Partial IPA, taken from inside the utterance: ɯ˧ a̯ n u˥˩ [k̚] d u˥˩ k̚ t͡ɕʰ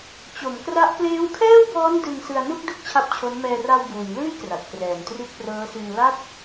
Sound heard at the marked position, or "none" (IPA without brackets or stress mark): k̚